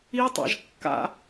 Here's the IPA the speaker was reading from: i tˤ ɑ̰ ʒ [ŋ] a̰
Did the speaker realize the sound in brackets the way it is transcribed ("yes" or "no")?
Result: no